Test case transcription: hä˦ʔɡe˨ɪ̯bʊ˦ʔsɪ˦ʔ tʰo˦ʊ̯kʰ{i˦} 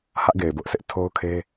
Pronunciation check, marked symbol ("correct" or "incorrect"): incorrect